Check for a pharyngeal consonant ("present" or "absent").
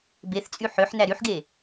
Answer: present